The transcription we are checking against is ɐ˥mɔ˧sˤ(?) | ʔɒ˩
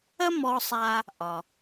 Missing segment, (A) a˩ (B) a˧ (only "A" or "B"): B